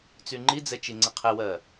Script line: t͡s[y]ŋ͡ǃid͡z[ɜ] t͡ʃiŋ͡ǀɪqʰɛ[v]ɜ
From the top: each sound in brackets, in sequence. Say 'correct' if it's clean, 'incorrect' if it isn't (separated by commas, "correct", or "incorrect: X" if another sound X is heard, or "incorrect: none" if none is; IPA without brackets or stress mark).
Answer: correct, incorrect: ɛ, incorrect: w